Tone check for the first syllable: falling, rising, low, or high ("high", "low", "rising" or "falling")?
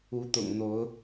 rising